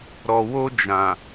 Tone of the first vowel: low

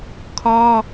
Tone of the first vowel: high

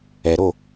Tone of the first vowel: low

